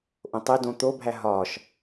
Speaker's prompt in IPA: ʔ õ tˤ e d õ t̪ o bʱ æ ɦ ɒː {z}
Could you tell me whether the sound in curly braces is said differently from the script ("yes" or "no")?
yes